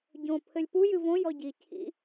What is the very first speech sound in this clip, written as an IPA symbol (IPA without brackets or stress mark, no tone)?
ɟ